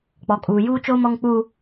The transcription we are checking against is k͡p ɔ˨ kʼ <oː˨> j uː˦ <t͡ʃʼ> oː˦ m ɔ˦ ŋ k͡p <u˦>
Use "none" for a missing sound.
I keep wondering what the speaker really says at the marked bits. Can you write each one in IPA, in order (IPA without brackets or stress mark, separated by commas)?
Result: uː˨, t͡ʃ, u˦